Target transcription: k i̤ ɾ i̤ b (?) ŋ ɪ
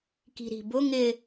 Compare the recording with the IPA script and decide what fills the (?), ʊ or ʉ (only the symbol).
ʊ